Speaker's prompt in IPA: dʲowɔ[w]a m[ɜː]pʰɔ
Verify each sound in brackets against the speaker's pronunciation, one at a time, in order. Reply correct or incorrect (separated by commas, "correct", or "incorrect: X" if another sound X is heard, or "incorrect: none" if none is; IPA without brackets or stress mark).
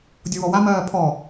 correct, correct